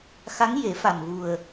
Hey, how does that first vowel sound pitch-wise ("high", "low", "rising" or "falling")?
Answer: rising